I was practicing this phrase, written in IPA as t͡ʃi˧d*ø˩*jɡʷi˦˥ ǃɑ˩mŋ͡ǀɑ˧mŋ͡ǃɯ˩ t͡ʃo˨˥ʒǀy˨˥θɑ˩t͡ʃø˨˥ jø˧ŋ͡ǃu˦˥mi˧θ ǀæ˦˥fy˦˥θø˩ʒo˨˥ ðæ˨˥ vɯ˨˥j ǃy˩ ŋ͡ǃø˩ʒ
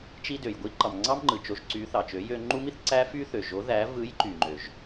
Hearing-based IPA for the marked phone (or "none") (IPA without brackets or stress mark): ø˩